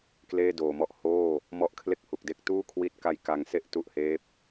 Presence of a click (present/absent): absent